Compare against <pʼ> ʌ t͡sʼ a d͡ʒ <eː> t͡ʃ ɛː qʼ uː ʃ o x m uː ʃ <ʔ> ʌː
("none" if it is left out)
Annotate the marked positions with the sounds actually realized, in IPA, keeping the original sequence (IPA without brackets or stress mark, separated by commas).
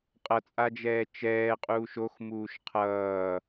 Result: qʼ, ɛː, qʰ